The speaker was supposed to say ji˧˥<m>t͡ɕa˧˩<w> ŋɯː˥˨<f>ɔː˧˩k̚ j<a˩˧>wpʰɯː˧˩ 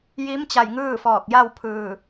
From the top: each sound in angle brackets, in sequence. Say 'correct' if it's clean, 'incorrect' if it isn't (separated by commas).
correct, incorrect, correct, incorrect